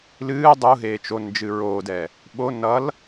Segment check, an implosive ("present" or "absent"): present